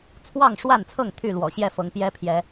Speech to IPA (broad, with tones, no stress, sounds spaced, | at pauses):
t͡sʰ w ɑ˥˨ ŋ ʂ w a˥˨ n t͡sʰ ɤ˥˨ ŋ t̪ʰ y˥˨ l w ɔ̰˨˩ ɕ j ɛ˥˨ f ɤ˨˦ ŋ p j ɛ˦ pʰ j ɛ˨˦